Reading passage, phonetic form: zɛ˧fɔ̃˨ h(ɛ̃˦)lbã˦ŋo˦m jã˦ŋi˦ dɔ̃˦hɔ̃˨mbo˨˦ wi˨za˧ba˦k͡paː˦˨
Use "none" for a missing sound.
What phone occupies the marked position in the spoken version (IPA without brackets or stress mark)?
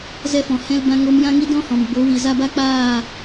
ɛ̃˦